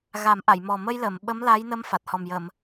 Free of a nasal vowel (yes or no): yes